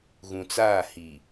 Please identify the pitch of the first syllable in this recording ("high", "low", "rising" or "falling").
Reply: low